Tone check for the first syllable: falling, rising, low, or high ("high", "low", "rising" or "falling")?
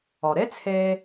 low